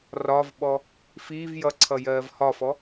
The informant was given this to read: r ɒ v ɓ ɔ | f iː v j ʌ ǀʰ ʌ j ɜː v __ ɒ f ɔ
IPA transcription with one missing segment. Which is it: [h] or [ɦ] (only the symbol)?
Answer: h